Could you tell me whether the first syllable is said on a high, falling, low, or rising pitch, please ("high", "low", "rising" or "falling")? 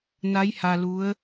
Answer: rising